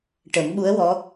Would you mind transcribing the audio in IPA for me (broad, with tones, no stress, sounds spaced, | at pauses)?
ʈ ə˨˩˦ m ɓ u˧˥ ə̯ w ɔ˧˥